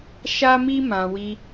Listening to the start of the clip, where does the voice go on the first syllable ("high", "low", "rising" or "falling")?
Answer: high